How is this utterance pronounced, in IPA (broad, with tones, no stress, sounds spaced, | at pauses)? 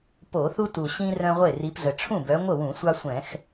p o˧˩˧ θ u˦ t u˨˩ ɕ ĩ˦ r œ̃˦ ʁʷ e˥˩ r i˨˦ p z ə˨˩ ʈ͡ʂʰ ũ˥˩ b œ˨˦ ŋʷ ə˥˩ w ũ˧˩˧ sʷ ɑ˦ sʷ ɛ̃˧˩˧ x